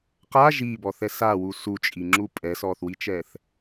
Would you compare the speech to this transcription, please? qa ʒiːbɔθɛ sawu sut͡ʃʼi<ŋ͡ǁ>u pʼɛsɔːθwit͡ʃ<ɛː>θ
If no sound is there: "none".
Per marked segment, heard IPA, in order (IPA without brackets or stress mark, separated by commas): ŋ͡ǁ, ɛː